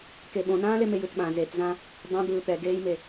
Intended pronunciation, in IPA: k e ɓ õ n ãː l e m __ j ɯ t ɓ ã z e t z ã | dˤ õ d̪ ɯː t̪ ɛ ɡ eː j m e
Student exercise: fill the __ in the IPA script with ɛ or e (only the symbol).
e